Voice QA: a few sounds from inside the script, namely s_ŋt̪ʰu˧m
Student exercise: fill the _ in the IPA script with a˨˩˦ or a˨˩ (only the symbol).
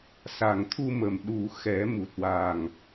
a˨˩